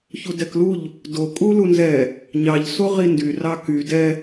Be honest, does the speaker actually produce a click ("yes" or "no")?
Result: no